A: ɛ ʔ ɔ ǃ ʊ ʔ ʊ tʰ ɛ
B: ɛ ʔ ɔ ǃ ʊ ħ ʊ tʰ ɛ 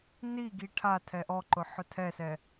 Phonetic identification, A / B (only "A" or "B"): B